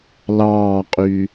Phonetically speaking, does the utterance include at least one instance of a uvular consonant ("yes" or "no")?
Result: yes